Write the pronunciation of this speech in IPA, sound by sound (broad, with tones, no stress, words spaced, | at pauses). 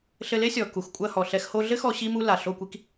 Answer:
ɬɘ˧le˦sʲɔ˨ ku˨xkʷʼɐ˧hɔ˨ɬɛ˧x ho˧ɮɘ˦xɔ˧ ɕi˦mu˦la˨ ɬo˦˨kʷi˦k